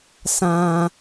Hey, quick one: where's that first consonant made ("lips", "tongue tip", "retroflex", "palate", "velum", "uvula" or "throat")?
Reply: tongue tip